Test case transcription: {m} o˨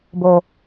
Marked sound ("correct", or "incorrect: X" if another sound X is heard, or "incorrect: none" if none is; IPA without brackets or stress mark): incorrect: b